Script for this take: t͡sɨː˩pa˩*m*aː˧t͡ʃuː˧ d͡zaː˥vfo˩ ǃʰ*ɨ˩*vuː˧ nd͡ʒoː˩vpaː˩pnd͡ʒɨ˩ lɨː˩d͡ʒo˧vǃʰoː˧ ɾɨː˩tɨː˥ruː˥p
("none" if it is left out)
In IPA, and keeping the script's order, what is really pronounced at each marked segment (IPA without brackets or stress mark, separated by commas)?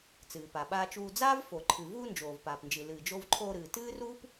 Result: ɓ, ɨ˩